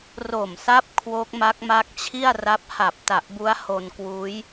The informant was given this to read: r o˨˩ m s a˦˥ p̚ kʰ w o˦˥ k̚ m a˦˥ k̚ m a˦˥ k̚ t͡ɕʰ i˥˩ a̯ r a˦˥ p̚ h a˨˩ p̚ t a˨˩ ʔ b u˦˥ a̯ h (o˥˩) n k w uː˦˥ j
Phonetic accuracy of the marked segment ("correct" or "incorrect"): incorrect